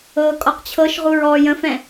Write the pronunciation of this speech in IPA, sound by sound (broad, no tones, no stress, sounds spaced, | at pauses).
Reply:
ɤː kʼ ɔ q t͡ɕʰ ɤ ʃ ʁ u ɹ ɔː j ə̃ f ɛ̃